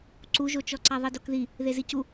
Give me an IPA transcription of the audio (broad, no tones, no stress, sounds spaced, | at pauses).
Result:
ǀ u ʒ o t͡ʃ ɔ ǀ a ðˤ i d o k ð i | ð e z i c u